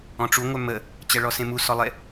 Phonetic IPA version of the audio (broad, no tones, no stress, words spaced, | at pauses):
ɔ̃ʈ͡ʂu ŋʷœmə | t͡ɕɛɭɔsẽmu sɔlˠe